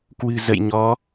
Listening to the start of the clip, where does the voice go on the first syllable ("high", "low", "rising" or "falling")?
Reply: low